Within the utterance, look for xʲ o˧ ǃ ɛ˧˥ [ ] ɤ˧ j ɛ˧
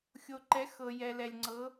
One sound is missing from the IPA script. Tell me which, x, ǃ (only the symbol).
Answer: x